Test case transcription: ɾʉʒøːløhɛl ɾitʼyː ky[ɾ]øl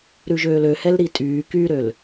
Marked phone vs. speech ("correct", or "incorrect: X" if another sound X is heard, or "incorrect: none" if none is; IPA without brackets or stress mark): correct